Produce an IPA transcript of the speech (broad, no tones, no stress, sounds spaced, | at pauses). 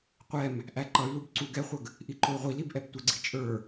qʷ ɛ m | ʔ æ ǃ ʌ y̯ l u b ǀ u ɡ ɛ χʷ ə ɡ | ʔ i ǃ ʊ i̯ ʁʷ i l i b ʔ ɛ b tʷ ə ɡ͡ǀ i t͡ʃʼ ə˞